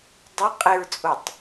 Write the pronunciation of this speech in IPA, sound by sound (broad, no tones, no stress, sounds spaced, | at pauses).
dˤ ɪ qʼ ɪ ɹ t͡sʼ o tˤ